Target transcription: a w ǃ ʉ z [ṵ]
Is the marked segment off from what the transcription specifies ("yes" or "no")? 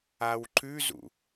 no